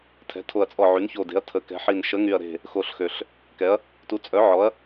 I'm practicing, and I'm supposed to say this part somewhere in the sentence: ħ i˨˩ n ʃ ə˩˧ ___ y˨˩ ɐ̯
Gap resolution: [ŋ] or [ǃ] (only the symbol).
ŋ